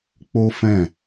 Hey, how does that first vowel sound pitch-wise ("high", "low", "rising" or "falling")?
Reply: high